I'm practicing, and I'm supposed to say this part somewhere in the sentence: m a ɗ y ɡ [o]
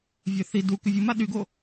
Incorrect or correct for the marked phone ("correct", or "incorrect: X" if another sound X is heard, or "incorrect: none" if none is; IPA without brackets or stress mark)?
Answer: correct